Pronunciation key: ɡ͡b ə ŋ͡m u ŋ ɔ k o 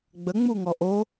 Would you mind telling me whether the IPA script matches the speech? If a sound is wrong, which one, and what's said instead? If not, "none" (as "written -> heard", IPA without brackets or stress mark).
k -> ʔ